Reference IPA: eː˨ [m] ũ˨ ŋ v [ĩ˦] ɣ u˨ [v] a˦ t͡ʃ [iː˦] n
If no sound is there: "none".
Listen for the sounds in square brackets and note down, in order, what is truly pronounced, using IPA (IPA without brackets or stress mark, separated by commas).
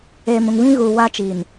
m, ĩ˦, w, iː˨